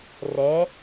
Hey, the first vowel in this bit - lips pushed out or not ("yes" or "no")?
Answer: no